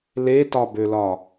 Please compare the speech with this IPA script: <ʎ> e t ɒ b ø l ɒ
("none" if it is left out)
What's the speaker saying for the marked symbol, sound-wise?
l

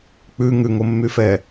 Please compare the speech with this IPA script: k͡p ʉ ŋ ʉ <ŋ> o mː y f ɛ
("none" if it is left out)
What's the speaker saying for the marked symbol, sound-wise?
ŋ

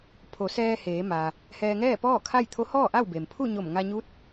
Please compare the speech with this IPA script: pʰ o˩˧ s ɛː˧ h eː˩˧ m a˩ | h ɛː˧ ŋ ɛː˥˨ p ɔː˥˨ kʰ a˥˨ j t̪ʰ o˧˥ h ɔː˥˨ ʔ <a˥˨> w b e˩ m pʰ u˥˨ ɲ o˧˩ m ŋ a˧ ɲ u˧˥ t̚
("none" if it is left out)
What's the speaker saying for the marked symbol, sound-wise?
a˥˨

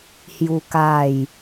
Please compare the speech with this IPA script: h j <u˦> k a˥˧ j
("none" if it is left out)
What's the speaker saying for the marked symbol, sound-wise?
u˦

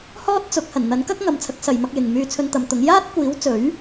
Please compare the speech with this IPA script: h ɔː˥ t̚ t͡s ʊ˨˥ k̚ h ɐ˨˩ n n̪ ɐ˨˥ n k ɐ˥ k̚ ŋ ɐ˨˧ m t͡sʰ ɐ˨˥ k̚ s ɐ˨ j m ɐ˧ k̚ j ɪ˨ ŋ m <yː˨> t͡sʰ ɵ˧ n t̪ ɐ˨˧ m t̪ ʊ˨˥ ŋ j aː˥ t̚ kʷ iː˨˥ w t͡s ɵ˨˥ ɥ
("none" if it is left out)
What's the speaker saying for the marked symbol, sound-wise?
yː˧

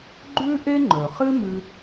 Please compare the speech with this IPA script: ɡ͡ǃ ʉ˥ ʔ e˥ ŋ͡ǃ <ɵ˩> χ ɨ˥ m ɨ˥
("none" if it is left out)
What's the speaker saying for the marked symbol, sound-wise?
ɵ˩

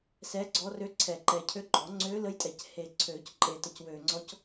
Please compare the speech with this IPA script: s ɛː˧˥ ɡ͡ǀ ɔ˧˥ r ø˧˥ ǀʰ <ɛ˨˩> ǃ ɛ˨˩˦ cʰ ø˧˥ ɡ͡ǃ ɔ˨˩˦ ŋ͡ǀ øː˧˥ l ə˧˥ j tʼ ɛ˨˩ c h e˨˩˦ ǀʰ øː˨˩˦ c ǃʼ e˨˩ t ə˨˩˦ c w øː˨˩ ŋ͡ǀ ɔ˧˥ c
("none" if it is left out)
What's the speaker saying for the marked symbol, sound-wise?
ɛ˨˩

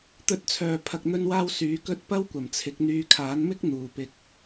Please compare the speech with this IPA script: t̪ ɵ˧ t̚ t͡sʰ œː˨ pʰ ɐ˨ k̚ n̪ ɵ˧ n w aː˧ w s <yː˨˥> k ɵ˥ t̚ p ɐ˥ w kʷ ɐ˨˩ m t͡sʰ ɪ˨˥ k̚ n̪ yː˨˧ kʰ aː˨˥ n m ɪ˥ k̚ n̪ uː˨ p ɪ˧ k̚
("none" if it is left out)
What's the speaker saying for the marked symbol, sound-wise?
yː˨˥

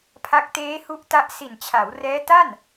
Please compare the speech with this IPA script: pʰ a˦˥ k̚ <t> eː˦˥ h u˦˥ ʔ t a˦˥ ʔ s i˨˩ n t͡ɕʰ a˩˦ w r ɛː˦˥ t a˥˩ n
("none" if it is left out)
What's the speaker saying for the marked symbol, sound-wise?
t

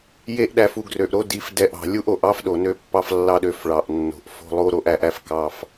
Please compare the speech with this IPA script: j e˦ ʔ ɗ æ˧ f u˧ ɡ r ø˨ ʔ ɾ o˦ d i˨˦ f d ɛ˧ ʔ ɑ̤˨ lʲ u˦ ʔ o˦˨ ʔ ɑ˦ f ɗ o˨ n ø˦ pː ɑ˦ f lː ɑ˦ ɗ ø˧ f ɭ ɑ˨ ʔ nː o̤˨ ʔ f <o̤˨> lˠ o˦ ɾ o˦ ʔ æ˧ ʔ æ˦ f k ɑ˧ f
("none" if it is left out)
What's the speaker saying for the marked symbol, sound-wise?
o̤˧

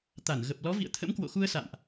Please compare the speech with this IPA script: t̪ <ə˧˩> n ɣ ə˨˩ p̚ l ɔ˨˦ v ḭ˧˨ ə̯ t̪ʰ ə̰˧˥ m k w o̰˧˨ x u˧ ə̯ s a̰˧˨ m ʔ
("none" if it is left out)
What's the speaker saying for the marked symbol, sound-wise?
a˧˩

